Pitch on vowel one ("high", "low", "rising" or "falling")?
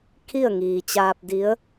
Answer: falling